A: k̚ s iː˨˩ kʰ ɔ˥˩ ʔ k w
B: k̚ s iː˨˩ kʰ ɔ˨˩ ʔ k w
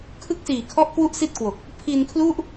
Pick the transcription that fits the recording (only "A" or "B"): A